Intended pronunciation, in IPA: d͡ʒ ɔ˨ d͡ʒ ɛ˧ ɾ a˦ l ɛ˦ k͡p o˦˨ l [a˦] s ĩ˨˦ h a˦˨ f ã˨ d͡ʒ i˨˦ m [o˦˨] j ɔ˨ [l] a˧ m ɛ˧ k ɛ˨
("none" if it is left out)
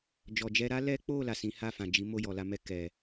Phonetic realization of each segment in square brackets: a˨, o˦˨, l

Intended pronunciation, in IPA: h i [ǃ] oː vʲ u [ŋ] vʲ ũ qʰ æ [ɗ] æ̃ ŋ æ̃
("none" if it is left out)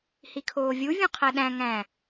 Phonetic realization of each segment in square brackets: kʰ, none, ɗ

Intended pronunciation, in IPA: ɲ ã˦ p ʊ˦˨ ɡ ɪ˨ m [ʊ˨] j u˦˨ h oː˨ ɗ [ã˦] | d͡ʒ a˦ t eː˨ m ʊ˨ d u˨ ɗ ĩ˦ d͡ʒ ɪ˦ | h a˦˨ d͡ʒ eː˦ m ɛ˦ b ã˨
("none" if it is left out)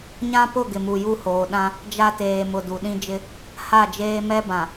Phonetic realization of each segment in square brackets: u˨, ã˦

